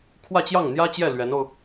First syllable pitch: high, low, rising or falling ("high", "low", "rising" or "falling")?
falling